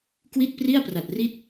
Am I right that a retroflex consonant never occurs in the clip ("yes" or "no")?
yes